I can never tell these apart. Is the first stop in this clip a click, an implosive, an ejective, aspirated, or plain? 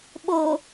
implosive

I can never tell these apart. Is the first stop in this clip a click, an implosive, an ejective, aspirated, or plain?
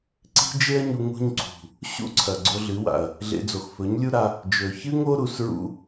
click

